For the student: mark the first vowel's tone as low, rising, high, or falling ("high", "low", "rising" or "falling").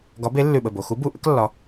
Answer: rising